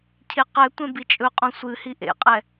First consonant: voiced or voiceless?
voiceless